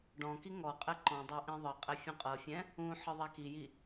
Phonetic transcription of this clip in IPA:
ɖ ɔ̃ k i ŋ ɔ qʼ ɛ ǃ ɔ̃ dˤ a ʔ ĩ ðˤ ɤ qʼ ɛ fʲ ũ qʼ ɤ fʲ ɛ̃ | ũ ħ ɯ ðˤ a k i j i

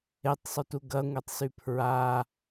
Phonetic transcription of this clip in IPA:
e tˤ sˤ u t u ɡ ɐ ŋʷ ɛ tˤ s y pʰ ɹ a

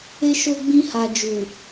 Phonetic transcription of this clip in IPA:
e˦ ʃ o˦ ɡ͡b ĩ˦ h a˧ d͡ʒ u˨

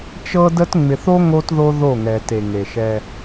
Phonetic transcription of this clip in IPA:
t͡ʃ ɤ˦ d ə˦ t ŋ͡m ɪ˨ θ o˦ ŋ o˦ t ð o˦ ð o˦˨ ŋ ɛ˨ t e˨ ŋ e˨ ʃ ɛ˦

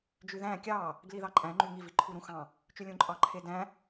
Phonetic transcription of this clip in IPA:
d͡ʒ y ð æ̃ kʲ ɑ | ɡ l i ð ɑ ǃʼ æ̃ ŋ͡ǃ y ŋ i v i ǃʰ u ɾ ũ x ɑ̃ | t͡ʃ y lʲ ũ ǃʼ ɑ ǃʰ e d æ̃

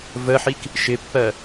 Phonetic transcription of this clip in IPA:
v ə ħ i k | ʃ ɪ pː ɜ

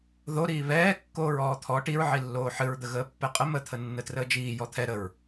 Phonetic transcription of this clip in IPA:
ð o ɾ iː β ɛː kː oː ɹ ɔː t̪ʰ ɔ ʈ i ɹ ʕ i lː oː ħ ɨ ɹ d̪ ə ɣ əː pː ɛ qʼ ə m ə t̪ʰ ə nː ə t r əː d͡ʒ iː j ɔ t̪ʰ ɛ ɾ ə ɹ

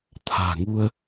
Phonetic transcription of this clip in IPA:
t̪ʰ a̤ː˨˩ ŋ u˧ ə̯

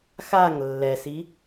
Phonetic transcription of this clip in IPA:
x a ŋ lː ɛ s i

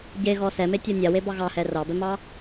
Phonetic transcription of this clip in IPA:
ɟ e ɣ ɔ s ɛ m e tʲ ɔ nʲ a w e b ɑ ɣ ɑ h ɛ r ɑ b ɛ m ɑ

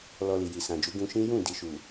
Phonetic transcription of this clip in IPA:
l ɔ˧ l i˨ j i˨ s ã˨ d͡ʒ u˨˦ ɡ ũ˧ ʃ ĩ˦ j ũ˦˨ d i˨ ʃ u˨

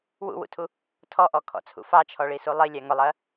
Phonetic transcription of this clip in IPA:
w ṵ w ṵ tʰ u | tʰ ɔ ʔ ɔ kʰ ɔ̰ t͡sʰ ṵ f ɑ t͡ʃʰ ɔ ɭ i s u lˠ i lʲ æ ŋ ʊ lˠ ɜ

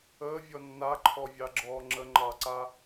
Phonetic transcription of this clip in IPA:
əː vʲ ɔ nː a ǃʰ ɔ vʲ ɑ ɡ͡ǁ ɔː ŋ͡ǁ ə ŋ͡ǃ ɑ ǀ a

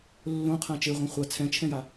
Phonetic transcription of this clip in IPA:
lː õ qʰ ã t͡ʃ e ʁʷ ã χʷ a t͡sʰ ɛ̃ t͡ʃʰ ɛ̃ j a

